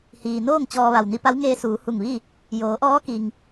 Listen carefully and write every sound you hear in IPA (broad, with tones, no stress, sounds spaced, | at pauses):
h iː˩ n oː˥˨ ŋ t͡ɕ ɔː˧ ʋ a˧˩ w n i˧ p a˧˥ w ŋ eː˧ s uː˩˧ h u˧˩ ŋ ʋ i˥˨ | j oː˩˧ ʔ ɔː˧˥ k i˩ ŋ